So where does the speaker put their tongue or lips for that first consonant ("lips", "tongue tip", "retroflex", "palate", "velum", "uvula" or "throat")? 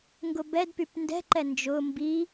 velum